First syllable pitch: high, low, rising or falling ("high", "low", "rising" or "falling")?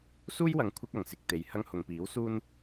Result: high